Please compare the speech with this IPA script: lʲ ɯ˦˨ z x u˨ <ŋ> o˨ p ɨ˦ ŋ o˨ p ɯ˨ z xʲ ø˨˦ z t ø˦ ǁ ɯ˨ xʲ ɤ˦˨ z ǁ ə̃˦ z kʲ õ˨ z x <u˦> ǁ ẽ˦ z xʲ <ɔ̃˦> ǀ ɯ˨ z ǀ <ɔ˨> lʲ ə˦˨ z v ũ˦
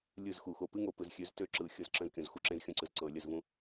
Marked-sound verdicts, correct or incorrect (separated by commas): incorrect, correct, incorrect, incorrect